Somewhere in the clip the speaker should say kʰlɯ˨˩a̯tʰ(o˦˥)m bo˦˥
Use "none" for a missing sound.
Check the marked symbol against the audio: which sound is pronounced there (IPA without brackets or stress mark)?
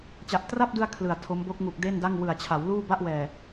o˦˥